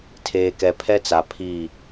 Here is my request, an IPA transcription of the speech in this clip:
tʰ eː˨ k ɛ˨ pʰ ɛ˦ t͡s a˨ pʰ i˦˨

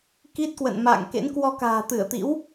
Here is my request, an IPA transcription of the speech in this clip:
k i˦˥ t̚ k w ə̰˧˨ n m a̰ː˧˨ ŋ k ḛ˧˥ n k w ɔ˧ k a̤ː˨˩ t̪ ɨ˧˩ ə̯ t̪ ḭ˧˥ w

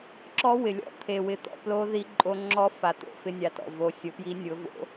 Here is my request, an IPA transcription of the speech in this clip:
ǁ ɔ˧˥ w ɪ˩ lʲ ɔ̰˧˥ t̪ʰ e˩ w ɪ˩˧ t̪ ɔ̰˩˧ p l o˧˥ ð i˧˥ ǃʼ o˧˥ ŋ͡ǁ ɔ˧˥ f a˩ t̪ o̰˩ f ɪ˧˥ nʲ a˩˧ t ɔ̰˩ v o˩˧ sʲ ʊ˩˧ p j i˧˥ nʲ ʊ˩˧ v o̰˧˥

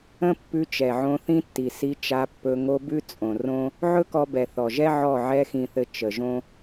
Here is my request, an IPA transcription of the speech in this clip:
ə̃˦ pː ʉ˧ t͡ʃ ɛ˨ ʕ õ˧ θ ĩ˦ tː i˨ s i˧ t͡ʃ a˧ pː ɵ˧ ŋ o˧ b ʉ˦ t͡sʼ õ˨ r õ˦ | ʕ ɵ˦ k ɔ˧ b ɛ˨ θ ɔ˨ ʒ ɛ˦ ʕ ɔ˦˨ ʕ ɛ˧ x ĩ˨ θ ɘ˨ t͡ʃ ə˨ ʒ õ˦

